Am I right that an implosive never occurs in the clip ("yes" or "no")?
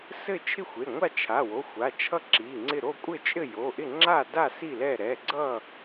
yes